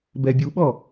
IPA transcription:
b ɛ bʲ u ɓ ɔ

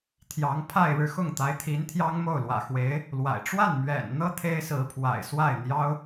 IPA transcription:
t̪ʰ j ɑ˧˥ ŋ pʰ a˥˧ ɪ̯ ɻ ɻ̩˥˧ x ʊ˥˩ ŋ t̪ a˧˥ ɪ̯ t̪ʰ i˧˥ n t̪ʰ j ɑ˥ ŋ m o˥˩ ʊ̯ l w ä̰˨˩ x w e˧˥ ɪ̯ | l w a̰˨˩ ɪ̯ ʈ͡ʂ w a˥˩ n m ɥ ɛ̰˨˩ n n̪ ɤ˥ t̪ʰ e˥ ɪ̯ s ɹ̩˧˥ pʰ w a̰˨˩ ɪ̯ s w a˥˩ ɪ̯ n̪ j ɑ˥ ʊ̯

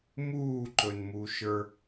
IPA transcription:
m uː ǃ ɵ n m u ʃ ə˞

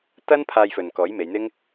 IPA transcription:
t̪ ɐ˥ n pʰ aː˧ j f ɵ˨ n k ɔː˨˥ j m e˨˧ j n̪ ɪ˥ ŋ

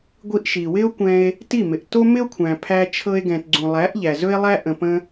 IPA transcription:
ɡʷ i˧ ʔ ʃ i˨ w ɪ˦ o̯ kʷ ɛ̃˧ e̯ | t i˦˨ m ɪ˨ ʔ t o˦ m ɪ˦ o̯ kʷʰ æ̃˨ pʰ æ˧ t͡ʃʰ ɤ˧ e̯ ɡ ɛ̃˨ t ɡ͡ǀ ũ˨ lˠ æ˨˦ ʔ ʎ æ˨ z ɵ˦ e̯ lˠ æ˦ ʔ ə̃˨ p ə̃˧

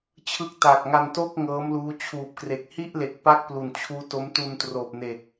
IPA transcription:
t͡ɕʰ ɯ˦˥ k̚ t a˨˩ k̚ ŋ a˧ n t oː˥˩ k̚ ŋ ɤː˦˥ m l uː˦˥ t͡ɕʰ uː˨˩ p̚ k r e˨˩ k̚ h i˥˩ ʔ l e˨˩ k̚ p a˥˩ k̚ p l u˨˩ n t͡ɕʰ uː˦˥ t o˦˥ m t u˧ n t r oː˨˩ p̚ n e˨˩ k̚

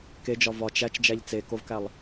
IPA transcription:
k e d͡ʒ ɒ v ɒ t͡ʃ æ t͡ʃ d͡ʒ æ ʎ t͡s e k o v k æ lˠ

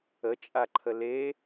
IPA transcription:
ə t͡ʃʼ a ǃʰ ə l e

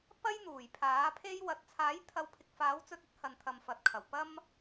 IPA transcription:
p ɐ˥ j n̪ uː˨˩ j pʰ aː˨˥ pʰ e˥ j w ɐ˧ t̚ t͡sʰ aː˨˥ j t̪ʰ ɐ˨˧ w pʰ ɪ˨ k̚ f aː˨˥ w t͡s ɵ˧ t̚ ɵ˥ t̚ h ɐ˨ n t̪ʰ ɐ˨ m f ɐ˨ t̚ kʰ ɐ˨˩ w p ɐ˧ m

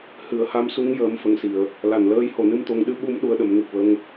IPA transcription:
h ɨ˨˩˨ ə̯ h a˧˥ m s u˧˥ ŋ j əː˨˩˦ m f ə˨˩ ŋ s i˨˩˨ ə̯ | l a˨˩˨ n l əː˧ j h o˨˩ n ɨ˧ m t̪ o˧ ŋ ɗ ɨ˧˥ ɓ u˧˥ m ɗ u˧ ə̯ ɗ ə˨˩˦ m n ɨ˨˩ k̚ w ə˧ ŋ

